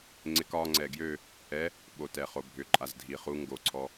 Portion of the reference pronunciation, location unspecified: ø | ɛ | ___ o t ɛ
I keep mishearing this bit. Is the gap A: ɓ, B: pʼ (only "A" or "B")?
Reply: A